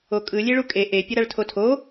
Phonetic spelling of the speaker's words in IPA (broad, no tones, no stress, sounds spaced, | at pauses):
o kʼ ɯ lʲ e ɭ u kʼ e ʔ e pʲ ʌ ɾ a ɭ tʰ o tʰ o